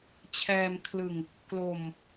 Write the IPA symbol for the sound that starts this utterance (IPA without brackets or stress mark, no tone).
t͡ɕʰ